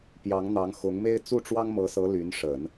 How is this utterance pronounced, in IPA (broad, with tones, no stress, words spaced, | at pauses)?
pjɑ˧˥ŋn̪ɑ˧˥ŋxʊ˧˥ŋme˥ɪ̯ t͡su˥˩ʈ͡ʂwɑ˥ŋmɤ˧˥sɤ˧˥ ly˧˥n ʂə˨˩˦n